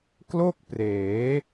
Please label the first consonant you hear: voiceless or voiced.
voiceless